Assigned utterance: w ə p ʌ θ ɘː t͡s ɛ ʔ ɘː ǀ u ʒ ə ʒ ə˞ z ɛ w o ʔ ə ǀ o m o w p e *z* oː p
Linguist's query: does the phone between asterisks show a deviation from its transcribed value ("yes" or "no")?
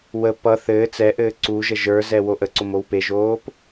yes